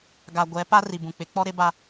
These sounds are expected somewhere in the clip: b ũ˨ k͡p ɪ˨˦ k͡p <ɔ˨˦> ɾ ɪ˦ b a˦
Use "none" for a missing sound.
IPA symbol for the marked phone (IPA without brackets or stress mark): ɔ˦